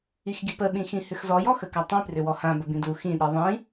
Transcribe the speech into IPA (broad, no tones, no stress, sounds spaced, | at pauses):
i x ɡ i p ə ɓ ĩ x ĩ h ʏ x z ɔ j ɔ x ə k a tˤ ĩ p r ʏ w ɔ h ã b ə b ĩ d u x ĩ ɗ i ðˤ ĩ